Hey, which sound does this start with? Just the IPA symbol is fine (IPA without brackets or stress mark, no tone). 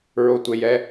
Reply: ɹ